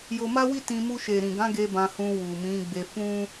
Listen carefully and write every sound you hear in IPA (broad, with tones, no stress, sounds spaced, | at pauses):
j o˧ m a˦ w i˦ t ĩ˧ m u˧ ʃ e˨ ɾ ĩ˨ ɡ ã˨˦ ɡ e˧ b ã˧ h ũ˧ w u˨ m ĩ˨˦ ɡ͡b e˧ f ũ˦